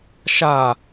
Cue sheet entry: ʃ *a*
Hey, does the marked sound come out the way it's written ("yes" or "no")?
yes